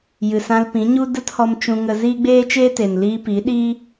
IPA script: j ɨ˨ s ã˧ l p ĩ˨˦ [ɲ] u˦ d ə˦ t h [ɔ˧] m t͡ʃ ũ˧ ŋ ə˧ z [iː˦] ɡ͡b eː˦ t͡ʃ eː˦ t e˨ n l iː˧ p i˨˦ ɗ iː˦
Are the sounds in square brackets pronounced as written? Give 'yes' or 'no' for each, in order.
yes, yes, yes

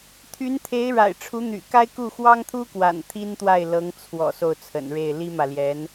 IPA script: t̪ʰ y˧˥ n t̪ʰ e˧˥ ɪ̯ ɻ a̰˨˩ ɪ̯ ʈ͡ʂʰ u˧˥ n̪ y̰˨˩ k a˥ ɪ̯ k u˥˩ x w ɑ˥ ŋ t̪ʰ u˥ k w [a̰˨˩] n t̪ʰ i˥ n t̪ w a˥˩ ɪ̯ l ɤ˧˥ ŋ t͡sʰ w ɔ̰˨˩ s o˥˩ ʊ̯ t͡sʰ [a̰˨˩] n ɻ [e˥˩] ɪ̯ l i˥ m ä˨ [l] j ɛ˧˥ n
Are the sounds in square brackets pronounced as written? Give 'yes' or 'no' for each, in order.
yes, no, yes, yes

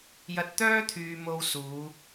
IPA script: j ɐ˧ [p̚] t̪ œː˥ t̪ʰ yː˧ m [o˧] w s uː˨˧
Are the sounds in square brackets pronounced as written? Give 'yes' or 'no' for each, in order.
no, yes

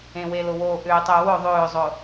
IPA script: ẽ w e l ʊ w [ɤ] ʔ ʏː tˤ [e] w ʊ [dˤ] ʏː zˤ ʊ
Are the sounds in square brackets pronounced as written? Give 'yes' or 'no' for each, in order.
no, no, no

